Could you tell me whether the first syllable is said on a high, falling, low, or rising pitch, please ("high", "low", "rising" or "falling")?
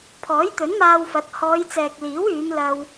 rising